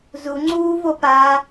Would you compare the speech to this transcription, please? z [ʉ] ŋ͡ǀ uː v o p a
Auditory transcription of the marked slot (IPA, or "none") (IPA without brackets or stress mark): u